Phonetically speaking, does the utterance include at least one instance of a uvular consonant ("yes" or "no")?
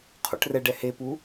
yes